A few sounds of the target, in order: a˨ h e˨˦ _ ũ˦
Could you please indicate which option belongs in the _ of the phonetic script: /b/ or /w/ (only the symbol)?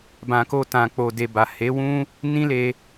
w